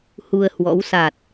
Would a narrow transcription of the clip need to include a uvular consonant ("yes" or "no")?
no